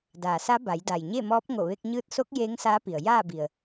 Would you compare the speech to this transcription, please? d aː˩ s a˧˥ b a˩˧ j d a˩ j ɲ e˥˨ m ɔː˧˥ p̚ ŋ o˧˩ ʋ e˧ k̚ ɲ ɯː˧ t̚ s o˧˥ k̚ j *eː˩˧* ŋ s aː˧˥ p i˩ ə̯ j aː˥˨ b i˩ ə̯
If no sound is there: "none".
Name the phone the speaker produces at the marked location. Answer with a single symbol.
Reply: eː˧˥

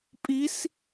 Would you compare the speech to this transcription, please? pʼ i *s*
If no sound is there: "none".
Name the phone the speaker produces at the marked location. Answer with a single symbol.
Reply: s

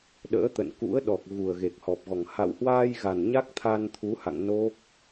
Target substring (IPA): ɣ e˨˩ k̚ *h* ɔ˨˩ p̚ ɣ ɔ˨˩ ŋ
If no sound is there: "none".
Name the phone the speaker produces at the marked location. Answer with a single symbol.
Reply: h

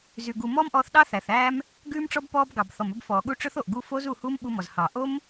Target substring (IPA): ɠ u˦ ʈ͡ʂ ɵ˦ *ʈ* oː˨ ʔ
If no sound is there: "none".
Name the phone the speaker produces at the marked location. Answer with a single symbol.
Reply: θ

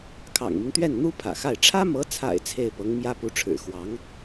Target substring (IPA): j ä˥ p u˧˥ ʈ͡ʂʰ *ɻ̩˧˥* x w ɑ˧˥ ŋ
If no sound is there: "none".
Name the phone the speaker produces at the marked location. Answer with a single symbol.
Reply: ɻ̩˨˩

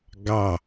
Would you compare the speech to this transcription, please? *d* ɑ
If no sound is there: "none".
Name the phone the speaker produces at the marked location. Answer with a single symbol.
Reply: ɡ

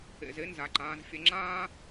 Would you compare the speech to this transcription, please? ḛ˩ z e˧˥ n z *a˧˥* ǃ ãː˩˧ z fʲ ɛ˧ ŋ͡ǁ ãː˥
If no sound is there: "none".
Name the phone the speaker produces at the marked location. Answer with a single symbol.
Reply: a˩˧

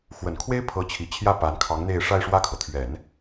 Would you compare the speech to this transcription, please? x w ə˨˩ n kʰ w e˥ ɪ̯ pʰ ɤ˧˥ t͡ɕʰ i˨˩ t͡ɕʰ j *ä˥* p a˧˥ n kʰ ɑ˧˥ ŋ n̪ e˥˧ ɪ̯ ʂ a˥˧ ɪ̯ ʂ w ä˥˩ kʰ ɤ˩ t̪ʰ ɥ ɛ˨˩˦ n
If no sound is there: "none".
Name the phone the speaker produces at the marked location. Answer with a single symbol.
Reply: ä˥˩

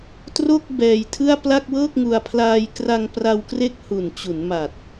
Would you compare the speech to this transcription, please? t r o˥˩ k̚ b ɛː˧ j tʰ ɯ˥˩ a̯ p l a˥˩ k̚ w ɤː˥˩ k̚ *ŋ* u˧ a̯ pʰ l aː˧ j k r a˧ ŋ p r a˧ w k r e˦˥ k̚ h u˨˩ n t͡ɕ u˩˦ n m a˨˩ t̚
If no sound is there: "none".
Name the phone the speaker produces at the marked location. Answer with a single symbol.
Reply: ŋ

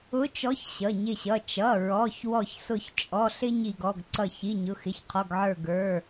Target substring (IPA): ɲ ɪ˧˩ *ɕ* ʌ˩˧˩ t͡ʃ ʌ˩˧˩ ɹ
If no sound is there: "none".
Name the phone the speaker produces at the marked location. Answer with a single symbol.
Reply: ɕ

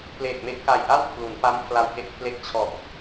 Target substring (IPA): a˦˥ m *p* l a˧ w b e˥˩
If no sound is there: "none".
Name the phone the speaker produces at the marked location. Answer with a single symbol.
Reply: pʰ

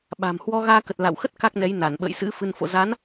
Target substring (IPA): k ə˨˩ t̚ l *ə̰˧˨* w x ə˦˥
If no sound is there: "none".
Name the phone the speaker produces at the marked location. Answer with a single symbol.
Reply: a̰˧˨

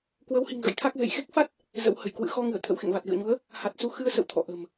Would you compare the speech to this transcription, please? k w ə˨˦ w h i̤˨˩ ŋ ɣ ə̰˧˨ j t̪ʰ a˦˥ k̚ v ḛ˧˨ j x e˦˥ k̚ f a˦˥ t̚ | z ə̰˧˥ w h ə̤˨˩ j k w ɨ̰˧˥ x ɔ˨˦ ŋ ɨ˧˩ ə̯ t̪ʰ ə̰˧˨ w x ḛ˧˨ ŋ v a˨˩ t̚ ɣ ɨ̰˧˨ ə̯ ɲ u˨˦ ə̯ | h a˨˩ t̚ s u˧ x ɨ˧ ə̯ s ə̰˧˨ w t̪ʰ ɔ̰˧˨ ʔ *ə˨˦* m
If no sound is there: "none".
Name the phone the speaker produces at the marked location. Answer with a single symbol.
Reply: ə̤˨˩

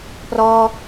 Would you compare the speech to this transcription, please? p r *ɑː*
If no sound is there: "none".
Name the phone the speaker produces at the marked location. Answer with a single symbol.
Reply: ɔː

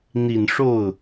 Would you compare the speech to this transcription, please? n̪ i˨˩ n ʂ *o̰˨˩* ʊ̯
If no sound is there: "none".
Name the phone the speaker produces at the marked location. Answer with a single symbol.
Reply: o˥˩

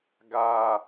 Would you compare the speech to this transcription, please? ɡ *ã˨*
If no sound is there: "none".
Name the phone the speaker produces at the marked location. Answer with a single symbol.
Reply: a˨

